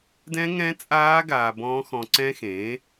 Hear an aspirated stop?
no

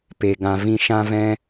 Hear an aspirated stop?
no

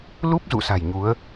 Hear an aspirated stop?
no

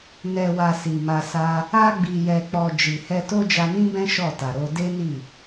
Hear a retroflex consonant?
no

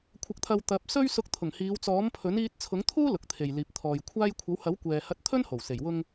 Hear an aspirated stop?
yes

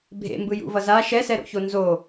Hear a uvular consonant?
no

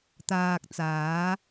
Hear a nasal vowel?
no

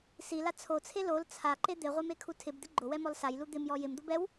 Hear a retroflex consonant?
no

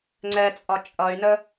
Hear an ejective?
yes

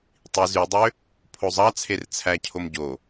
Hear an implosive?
no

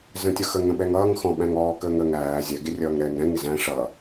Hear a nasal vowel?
yes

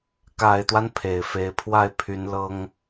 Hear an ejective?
no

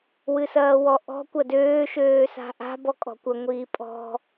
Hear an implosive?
no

